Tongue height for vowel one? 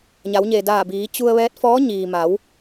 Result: low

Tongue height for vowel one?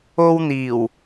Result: mid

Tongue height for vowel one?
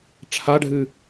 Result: low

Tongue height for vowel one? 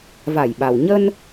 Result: low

